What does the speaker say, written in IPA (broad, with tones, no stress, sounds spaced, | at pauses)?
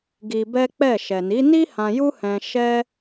ɡ i˧ b ɛ˦ k͡p ɛ˦˨ ʃ ɛ˨ n i˨˦ n i˦ h ã˧ j u˦ h ɛ̃˧ ʃ ɛ˦